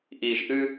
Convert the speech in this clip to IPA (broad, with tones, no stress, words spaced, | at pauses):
ʔiː˨ʒʔɨ˦